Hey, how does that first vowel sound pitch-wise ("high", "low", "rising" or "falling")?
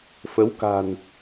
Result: rising